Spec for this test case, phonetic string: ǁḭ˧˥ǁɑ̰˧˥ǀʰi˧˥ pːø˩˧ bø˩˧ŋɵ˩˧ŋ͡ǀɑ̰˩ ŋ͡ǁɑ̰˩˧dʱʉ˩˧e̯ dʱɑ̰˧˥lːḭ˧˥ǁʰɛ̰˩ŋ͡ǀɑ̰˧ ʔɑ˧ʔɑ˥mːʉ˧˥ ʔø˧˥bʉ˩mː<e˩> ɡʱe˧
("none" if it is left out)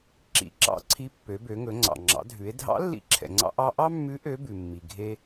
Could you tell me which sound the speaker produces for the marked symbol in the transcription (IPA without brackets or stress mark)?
i˩